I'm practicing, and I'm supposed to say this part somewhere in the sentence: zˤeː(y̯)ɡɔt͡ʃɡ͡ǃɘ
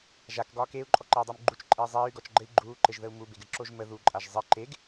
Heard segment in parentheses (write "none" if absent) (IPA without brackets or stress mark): y̯